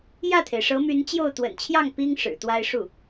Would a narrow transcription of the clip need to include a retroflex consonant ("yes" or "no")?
yes